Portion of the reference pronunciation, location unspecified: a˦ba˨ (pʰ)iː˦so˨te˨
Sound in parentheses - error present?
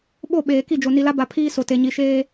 no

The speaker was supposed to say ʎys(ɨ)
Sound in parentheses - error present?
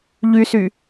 yes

